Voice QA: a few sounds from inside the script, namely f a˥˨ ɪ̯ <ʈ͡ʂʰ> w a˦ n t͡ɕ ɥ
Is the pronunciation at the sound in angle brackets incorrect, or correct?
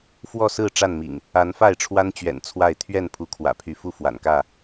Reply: correct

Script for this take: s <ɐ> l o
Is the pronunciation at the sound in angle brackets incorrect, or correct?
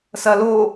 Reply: correct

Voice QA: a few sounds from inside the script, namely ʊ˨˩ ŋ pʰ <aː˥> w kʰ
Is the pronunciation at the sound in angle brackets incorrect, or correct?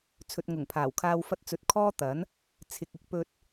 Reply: incorrect: aː˨˩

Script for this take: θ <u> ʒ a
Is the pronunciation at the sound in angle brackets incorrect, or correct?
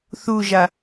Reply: correct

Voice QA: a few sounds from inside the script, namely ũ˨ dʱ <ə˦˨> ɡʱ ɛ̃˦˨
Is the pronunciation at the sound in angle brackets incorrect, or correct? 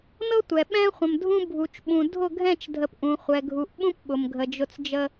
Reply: incorrect: ʊ˦˨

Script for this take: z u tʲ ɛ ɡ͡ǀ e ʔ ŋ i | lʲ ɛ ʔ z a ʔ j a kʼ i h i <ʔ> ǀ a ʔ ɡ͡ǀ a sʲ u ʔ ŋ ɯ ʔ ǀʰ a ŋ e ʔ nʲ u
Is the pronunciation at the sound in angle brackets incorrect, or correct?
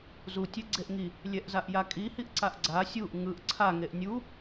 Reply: correct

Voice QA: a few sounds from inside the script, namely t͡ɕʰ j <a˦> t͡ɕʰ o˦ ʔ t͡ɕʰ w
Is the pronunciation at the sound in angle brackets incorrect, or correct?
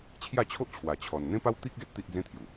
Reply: incorrect: a˥˧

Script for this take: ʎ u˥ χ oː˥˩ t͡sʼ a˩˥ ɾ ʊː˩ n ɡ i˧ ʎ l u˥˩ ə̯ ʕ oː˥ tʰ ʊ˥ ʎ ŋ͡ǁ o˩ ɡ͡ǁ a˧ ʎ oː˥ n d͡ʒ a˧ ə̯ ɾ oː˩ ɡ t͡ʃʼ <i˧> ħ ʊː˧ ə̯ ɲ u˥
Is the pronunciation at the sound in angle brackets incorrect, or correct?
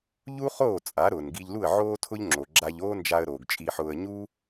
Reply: correct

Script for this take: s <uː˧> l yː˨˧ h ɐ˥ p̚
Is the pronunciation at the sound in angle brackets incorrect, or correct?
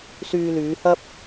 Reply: incorrect: yː˧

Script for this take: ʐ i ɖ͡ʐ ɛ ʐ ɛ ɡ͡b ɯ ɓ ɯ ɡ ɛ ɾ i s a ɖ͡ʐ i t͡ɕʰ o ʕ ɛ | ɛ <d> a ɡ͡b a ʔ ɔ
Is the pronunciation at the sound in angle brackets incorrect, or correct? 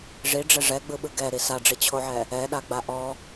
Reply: incorrect: ɗ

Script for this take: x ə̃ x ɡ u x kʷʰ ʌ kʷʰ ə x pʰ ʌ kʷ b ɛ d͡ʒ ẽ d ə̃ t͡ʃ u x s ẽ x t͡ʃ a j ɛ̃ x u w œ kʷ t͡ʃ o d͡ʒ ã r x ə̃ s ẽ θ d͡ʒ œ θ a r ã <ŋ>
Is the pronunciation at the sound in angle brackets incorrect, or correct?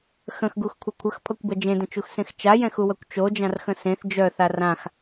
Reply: incorrect: x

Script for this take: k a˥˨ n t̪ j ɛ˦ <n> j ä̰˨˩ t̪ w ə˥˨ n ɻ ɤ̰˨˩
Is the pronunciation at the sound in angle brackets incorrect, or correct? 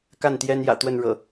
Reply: correct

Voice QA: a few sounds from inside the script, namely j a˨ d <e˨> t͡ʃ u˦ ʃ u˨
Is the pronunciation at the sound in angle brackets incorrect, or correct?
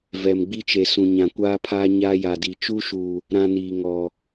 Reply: incorrect: i˨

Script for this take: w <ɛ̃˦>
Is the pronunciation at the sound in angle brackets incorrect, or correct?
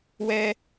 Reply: incorrect: ɛ˦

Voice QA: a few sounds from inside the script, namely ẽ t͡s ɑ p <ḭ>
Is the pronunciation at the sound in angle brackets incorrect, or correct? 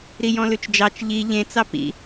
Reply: correct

